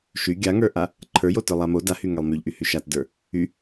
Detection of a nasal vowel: absent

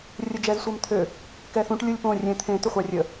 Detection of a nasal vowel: present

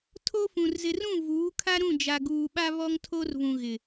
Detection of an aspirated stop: present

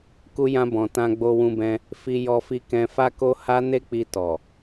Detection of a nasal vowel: present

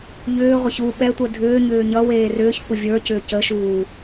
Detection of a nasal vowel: absent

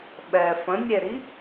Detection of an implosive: present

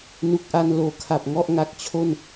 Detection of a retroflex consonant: absent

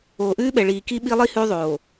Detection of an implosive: present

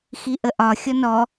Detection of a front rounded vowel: absent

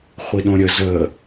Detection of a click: absent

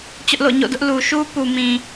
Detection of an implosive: absent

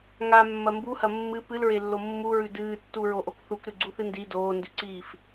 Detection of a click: present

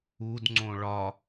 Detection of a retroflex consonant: present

